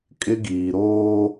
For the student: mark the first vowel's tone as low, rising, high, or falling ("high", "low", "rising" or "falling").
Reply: high